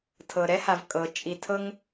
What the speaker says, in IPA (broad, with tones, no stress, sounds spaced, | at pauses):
tʰ ɤ˩ ɾ ɛ˥ h a˩ v kʼ ɤ˩ t͡ʃʼ i˩ tʰ ɤ˥ ŋ